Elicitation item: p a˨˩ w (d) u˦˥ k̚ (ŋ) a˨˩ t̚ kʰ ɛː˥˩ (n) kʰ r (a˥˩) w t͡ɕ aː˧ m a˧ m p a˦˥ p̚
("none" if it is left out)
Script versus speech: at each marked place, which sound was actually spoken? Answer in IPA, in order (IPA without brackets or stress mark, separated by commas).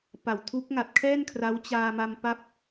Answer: tʰ, ŋ, n, a˦˥